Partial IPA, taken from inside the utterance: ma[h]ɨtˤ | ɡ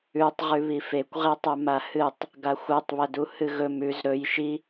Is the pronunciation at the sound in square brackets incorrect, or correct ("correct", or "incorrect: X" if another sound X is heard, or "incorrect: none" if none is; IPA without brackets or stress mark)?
correct